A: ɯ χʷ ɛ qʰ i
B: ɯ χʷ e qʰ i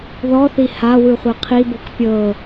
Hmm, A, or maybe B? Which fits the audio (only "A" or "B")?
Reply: B